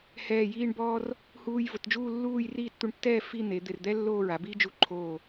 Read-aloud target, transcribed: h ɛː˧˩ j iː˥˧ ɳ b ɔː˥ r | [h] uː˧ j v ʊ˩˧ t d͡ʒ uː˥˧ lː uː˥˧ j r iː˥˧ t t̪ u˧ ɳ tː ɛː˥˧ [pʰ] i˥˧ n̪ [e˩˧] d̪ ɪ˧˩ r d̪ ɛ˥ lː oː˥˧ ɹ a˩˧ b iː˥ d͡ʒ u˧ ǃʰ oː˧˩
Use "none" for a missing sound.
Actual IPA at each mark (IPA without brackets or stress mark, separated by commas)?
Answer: h, f, e˩˧